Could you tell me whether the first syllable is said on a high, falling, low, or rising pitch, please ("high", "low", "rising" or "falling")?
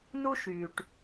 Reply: high